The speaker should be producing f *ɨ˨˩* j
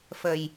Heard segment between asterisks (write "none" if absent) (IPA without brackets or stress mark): ə˨˩